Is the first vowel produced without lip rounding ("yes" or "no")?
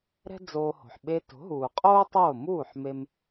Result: yes